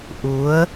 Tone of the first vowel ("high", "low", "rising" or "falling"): rising